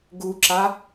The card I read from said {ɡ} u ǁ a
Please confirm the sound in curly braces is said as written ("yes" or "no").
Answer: yes